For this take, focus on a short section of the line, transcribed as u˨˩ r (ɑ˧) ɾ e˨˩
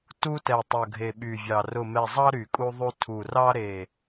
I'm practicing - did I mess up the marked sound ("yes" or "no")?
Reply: no